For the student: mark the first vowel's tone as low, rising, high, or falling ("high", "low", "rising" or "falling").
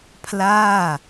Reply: falling